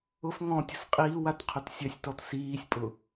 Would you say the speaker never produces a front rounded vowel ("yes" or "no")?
no